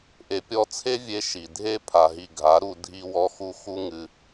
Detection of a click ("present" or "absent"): absent